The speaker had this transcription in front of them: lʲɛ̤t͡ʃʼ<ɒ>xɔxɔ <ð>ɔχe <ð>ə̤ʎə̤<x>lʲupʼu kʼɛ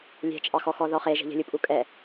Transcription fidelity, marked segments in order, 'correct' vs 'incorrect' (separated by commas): incorrect, correct, incorrect, incorrect